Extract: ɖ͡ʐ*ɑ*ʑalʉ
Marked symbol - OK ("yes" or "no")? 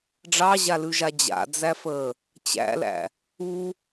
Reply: yes